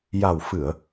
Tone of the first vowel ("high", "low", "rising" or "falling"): low